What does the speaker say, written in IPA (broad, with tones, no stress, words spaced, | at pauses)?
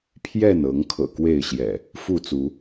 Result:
pʰjɛ˥˨nɤ˨˦ŋkʰɤ̰˨˩ kwe˥˨ɪ̯ɕjɛ̰˨˩ | fu˥˨t͡su˨˦